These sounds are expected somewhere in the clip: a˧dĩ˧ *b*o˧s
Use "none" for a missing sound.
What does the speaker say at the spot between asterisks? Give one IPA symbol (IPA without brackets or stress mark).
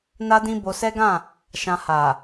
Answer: b